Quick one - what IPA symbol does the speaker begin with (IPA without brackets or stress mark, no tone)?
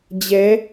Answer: d͡ʑ